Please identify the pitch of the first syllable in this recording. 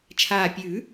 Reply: low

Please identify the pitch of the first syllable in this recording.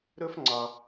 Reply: high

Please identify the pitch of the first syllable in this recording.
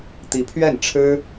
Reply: rising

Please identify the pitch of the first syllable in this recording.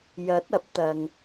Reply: rising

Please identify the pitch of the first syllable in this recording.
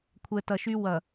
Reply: low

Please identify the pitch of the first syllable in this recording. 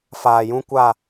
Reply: low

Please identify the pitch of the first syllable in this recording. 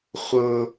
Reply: high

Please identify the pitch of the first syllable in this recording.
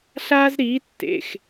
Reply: high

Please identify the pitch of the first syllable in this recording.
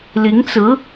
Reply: rising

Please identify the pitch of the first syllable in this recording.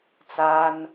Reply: high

